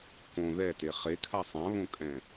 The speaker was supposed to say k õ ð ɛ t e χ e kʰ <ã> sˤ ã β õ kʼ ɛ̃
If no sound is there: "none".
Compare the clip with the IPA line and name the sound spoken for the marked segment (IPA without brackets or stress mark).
a